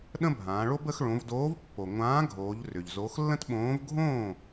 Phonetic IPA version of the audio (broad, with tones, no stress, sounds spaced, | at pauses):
ɗ ə̃˥ bʱ ãː˩˧ ɭ o˥ b ə˨˥ x ɭ õ˩˧ v d oː˨˥ v pː o˩ ŋʷ ãː˨˥ ɡʱ oː˩˧ ʎ r ʏ˩ ʎ z o˨˥ x lː ə̃˥ t ɓ õː˨˥ v ɡʱ õː˥˩